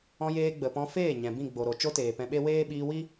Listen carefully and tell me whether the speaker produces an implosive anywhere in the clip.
yes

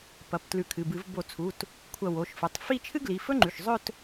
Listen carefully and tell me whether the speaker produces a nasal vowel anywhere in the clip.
no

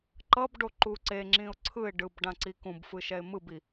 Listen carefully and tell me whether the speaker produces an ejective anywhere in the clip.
no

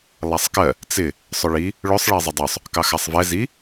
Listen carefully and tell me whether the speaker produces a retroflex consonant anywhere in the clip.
yes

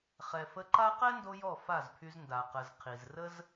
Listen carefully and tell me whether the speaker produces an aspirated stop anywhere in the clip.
yes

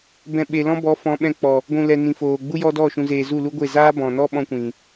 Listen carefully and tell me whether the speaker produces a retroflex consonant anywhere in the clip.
no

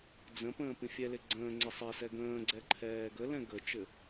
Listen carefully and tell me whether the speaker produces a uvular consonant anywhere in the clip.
no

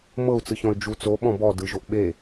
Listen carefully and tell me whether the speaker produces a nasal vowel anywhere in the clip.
yes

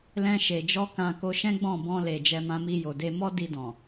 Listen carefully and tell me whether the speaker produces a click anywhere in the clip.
no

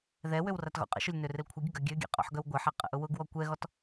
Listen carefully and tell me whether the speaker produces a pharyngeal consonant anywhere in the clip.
yes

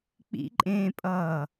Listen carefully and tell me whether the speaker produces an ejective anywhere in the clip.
yes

